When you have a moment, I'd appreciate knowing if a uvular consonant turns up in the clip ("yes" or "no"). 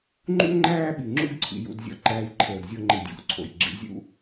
no